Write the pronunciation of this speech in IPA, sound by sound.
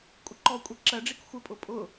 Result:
kʷʼ ɪ ǃ ɔ kʷʼ ɛ ǁ ɜ ɖ͡ʐ i k xʷ ɪ pʼ ʊ pʼ ʊ

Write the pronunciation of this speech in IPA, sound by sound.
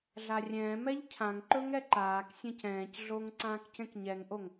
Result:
ɮ a rʲ ɛ̃ː m ɛ ʎ cʰ ã ŋ ǃ ɵ ŋ ɛ ǃ aː k sʲ ẽ c ɛ̃ː c ɮ o ŋ ǀ ãː k c ẽ k ɲ ɛ ŋ ʔ o ŋ

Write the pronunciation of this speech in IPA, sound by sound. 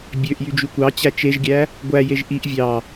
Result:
bʲ ø ʔ j y d͡ʒ y kʷ ɑ t͡ɕ æ t͡ʃ e ʒ ɡʲ æ | ɡʷ æ j e ʒ ʔ i ʔ vʲ ɑ

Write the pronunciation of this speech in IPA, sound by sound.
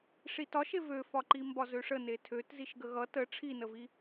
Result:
ʂ i t ɒ ʃ e v ø f ɒ ǃ i m b ɒ z ø ʂ ə n e tʰ ø t z i ʃ ɡ ə ɣ ʌ t ə ʈ͡ʂʰ i n ə v i

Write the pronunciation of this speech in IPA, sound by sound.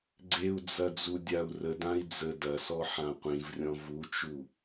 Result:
ɡ͡ǀ e u̯ d͡z ɐ d͡z u dʲ a u̯ r ə d ã i̯ d͡z ə d ɐ s ɔ ħ ã qʷ ĩ v rʲ ɔ̃ v u t͡ʃ u

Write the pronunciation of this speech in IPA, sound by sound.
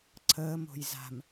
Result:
ǀʰ əː m o̤ j z a̤ m

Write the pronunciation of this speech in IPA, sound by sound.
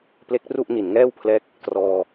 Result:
p l e˦˥ k̚ r u˥˩ ʔ n i˨˩ n ŋ ɛː˥˩ w pʰ l ɛː˦˥ k̚ | t r ɔː˧

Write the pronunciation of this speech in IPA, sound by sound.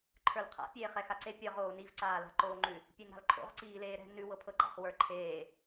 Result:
ǃʰ ə˞ l qʰ a̰ pʲ eː χ ɛ x a ǀ e pʲ ɤ ʁ oː n i v ǀ aː l a̤ ǃ oː ŋ͡ǃ ʉ | pʲ e n ɾ a̤ l ǃʰ o̰ ʁ ǀ iː l eː ɾ ɛ̤ n ʉ w ɤ pʰ ɤ ɡ͡ǃ a̰ χ w ə˞ ǃʰ eː

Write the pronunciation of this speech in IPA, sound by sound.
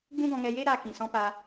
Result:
ɡ͡b ũ˦ ɡ ɔ̃˧ ŋ ɛ˧ j e˦ ɾ aː˧ k ĩ˨ s ɔ̃˧ p a˧

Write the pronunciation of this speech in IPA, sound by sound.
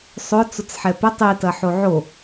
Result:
sˤ ʊ t͡s ʊ t͡s ħ ɛ p ɪ tˤ i t ɐ ħ o ʕ o

